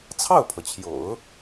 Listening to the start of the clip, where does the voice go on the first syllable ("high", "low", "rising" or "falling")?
falling